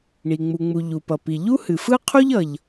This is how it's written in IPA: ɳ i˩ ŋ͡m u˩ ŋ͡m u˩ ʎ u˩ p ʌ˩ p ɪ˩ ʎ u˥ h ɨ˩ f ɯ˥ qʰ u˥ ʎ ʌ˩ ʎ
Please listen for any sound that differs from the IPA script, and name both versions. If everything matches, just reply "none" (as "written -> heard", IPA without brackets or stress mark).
ɪ˩ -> i˩